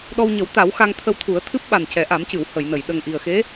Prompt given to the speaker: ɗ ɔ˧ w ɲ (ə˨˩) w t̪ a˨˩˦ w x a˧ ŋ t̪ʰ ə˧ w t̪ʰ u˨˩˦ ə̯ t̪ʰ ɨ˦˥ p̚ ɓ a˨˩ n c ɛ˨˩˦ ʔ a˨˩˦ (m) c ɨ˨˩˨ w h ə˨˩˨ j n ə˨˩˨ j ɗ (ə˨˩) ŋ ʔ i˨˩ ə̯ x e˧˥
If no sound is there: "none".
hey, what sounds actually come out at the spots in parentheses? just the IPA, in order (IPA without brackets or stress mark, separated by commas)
ə˨˩˦, m, ə˨˩